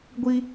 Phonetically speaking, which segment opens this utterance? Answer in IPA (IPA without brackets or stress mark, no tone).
ɡʷ